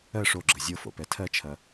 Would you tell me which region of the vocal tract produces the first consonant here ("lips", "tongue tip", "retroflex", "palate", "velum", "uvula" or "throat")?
retroflex